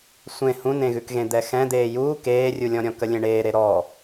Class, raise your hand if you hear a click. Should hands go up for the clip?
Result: no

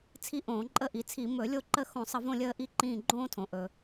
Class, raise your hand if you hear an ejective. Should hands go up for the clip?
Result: yes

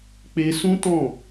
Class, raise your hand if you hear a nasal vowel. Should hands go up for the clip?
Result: yes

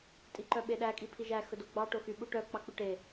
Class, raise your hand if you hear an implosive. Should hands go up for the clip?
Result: yes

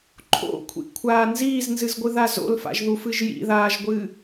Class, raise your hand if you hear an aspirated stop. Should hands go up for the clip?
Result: yes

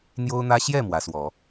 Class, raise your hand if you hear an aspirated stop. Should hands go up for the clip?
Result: no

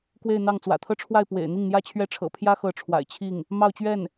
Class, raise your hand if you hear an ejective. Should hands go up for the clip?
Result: no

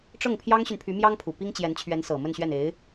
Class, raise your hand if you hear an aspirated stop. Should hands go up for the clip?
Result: yes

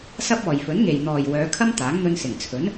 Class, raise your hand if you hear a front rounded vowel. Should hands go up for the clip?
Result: yes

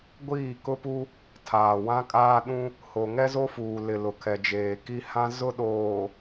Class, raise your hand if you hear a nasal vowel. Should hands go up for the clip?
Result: yes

